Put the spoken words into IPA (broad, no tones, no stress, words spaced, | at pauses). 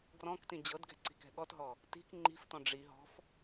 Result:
ɡrɔ̃ktĩ d͡ʑɤdɡɛ̤ ǀi̤kɛ̤ɠɔtɦɔ | ti̤k ŋ͡ǃi̤ftɔ̃ ɖ͡ʐi ɦɔ̤f